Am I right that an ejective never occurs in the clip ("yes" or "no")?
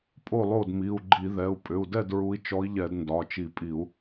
no